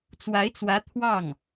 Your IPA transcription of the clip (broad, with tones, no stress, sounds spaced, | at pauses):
t͡s w a˧˥ ɪ̯ t͡s w ä˧˥ t̪ʰ w ɑ˥˩ ŋ